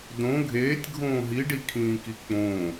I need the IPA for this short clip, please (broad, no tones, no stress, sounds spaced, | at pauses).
d õ ɡʱ eː tʲ ɡʱ õː ɦ i ɖ i kʰ ĩː k i k͡p õ